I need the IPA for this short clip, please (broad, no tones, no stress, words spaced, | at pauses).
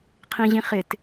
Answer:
qʰĩʑĩχɪt